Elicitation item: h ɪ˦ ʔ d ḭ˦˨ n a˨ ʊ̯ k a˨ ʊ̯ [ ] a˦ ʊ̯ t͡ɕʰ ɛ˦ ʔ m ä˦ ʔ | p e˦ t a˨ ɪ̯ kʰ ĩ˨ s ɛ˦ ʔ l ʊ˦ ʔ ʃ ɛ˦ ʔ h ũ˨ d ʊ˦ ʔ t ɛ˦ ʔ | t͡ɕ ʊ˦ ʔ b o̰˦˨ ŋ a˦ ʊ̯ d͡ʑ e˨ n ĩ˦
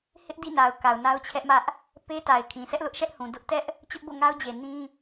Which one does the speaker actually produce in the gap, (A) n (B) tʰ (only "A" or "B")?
A